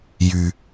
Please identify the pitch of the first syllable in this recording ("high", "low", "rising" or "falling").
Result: low